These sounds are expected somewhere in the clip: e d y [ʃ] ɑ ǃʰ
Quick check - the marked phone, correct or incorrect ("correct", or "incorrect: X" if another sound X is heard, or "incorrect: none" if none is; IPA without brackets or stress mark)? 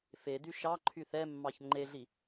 correct